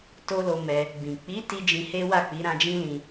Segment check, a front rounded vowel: absent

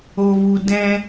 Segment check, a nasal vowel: present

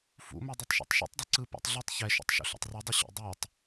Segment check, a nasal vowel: absent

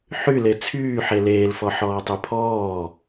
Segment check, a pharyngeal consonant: present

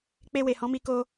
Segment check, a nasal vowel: present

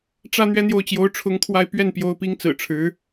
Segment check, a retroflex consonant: present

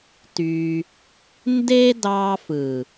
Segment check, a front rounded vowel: present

